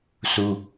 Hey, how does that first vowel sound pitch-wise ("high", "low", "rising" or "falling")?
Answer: high